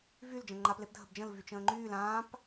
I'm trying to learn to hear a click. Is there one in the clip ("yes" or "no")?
yes